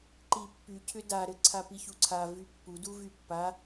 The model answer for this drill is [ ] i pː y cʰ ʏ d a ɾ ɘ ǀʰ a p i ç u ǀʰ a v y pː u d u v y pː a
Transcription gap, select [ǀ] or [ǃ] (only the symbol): ǃ